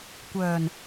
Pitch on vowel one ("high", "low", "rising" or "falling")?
low